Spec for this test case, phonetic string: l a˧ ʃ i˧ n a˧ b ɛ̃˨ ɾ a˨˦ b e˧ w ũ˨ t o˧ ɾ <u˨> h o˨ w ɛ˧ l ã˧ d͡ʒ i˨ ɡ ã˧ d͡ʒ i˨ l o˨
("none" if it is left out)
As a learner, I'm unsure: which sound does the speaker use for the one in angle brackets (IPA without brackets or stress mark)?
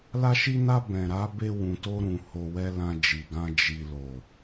ũ˨